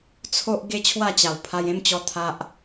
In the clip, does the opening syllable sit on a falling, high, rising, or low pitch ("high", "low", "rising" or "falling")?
high